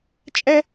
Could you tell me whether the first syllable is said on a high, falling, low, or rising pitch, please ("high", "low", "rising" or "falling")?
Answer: high